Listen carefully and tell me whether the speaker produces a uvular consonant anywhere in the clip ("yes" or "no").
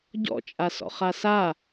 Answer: yes